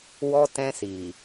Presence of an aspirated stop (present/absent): absent